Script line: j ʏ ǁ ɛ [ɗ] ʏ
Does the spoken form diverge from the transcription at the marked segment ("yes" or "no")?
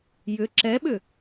yes